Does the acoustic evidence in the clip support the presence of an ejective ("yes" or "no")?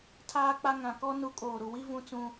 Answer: yes